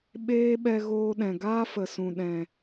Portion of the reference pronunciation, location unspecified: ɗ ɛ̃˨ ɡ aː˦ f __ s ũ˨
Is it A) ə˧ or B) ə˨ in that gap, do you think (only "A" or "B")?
B